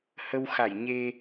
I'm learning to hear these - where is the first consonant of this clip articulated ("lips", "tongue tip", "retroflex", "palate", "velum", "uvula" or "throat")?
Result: throat